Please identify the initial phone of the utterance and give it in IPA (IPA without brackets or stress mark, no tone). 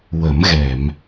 w